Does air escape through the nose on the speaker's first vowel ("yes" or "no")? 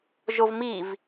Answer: no